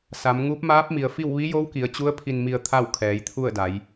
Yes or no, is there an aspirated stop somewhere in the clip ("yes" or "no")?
yes